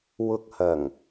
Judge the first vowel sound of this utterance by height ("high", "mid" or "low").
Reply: high